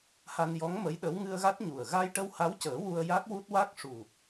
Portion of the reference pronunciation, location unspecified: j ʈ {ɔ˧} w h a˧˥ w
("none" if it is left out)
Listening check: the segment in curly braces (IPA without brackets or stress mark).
ə˧